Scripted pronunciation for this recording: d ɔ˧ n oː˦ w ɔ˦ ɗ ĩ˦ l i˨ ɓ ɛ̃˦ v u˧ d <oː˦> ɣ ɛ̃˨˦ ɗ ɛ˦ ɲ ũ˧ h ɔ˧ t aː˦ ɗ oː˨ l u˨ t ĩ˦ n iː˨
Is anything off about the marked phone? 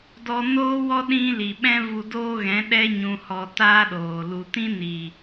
no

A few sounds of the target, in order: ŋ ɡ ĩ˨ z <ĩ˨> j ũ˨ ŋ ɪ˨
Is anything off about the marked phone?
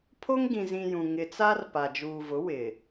no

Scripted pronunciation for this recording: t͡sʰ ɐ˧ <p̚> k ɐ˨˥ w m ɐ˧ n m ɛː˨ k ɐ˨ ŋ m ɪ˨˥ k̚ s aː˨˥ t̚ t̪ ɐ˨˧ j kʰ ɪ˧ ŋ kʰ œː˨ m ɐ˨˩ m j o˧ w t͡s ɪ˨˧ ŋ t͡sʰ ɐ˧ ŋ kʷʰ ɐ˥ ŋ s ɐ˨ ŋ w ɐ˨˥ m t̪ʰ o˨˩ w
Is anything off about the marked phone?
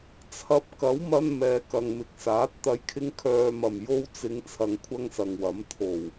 no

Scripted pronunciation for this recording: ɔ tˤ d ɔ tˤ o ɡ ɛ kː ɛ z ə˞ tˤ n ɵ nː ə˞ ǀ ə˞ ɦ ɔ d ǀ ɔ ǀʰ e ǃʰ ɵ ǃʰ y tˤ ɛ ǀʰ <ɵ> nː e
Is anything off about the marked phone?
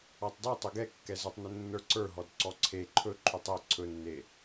no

